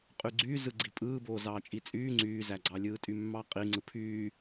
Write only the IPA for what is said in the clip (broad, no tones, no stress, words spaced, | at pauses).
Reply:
qʼyɡ͡ǀyː zɯɡ͡ǀipʼɯːboː zɑːt͡ʃʼit͡sʼyː ŋ͡ǀyːzæɡ͡ǀɑlʲɯː tʼymːɑqʼi ŋ͡ǀɯpʰyː